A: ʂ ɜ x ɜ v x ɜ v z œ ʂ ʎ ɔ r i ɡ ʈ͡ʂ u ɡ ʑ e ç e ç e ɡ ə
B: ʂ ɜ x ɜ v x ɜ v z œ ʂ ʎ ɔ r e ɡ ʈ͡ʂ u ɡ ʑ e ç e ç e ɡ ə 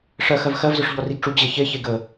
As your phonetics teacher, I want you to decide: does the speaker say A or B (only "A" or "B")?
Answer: A